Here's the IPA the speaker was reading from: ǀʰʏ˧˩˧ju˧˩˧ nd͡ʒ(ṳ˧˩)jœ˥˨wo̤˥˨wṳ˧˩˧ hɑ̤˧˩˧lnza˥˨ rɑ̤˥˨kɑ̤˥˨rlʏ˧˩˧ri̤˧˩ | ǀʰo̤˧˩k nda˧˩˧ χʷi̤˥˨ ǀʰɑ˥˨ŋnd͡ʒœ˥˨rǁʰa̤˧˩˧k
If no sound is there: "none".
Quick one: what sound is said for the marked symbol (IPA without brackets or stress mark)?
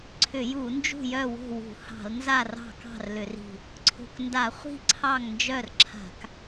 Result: ṳ˥˨